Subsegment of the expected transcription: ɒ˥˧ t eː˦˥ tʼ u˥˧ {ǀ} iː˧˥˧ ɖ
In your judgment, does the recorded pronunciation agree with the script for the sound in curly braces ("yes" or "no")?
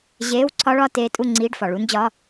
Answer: no